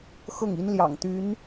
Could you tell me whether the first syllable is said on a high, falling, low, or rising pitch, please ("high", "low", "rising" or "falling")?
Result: falling